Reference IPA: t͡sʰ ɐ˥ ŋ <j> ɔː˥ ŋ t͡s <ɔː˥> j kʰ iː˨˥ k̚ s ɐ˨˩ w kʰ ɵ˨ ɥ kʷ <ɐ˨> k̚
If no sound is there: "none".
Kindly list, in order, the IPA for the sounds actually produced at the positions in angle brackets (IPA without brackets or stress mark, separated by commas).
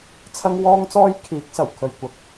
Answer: w, ɔː˥, ɐ˨